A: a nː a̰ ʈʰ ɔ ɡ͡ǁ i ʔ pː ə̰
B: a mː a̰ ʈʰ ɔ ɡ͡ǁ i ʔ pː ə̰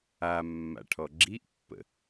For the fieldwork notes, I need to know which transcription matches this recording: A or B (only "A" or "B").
B